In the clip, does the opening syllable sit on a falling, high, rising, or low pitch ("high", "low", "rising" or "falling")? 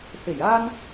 low